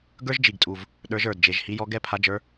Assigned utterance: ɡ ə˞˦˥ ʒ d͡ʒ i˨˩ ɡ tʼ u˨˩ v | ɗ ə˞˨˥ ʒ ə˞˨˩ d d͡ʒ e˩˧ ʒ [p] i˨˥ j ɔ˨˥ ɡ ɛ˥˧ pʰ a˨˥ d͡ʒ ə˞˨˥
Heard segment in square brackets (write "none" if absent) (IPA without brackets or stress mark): h